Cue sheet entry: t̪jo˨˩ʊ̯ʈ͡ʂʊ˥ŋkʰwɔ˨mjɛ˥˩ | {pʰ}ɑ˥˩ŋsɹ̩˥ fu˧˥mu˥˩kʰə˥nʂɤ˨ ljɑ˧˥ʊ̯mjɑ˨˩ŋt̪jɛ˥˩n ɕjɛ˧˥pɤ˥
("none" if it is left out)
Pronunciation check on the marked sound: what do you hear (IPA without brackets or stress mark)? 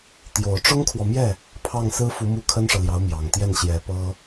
pʰ